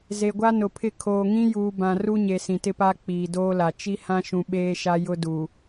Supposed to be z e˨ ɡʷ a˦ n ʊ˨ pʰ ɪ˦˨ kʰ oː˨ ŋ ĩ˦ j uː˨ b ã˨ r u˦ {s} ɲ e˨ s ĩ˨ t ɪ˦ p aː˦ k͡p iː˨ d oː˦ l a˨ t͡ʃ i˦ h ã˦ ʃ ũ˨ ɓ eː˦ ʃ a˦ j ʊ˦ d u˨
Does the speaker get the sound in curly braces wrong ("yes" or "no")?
yes